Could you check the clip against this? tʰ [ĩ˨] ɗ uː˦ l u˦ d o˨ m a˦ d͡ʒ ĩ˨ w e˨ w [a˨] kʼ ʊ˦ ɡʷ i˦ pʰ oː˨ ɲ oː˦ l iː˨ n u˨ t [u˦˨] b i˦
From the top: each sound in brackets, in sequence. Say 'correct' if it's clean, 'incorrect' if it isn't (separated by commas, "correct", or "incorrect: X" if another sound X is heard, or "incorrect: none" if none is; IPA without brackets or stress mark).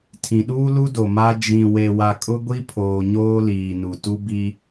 correct, correct, incorrect: u˦